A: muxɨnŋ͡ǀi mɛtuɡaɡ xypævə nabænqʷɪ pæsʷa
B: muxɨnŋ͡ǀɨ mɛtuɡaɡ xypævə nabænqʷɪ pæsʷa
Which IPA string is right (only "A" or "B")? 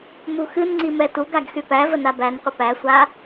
A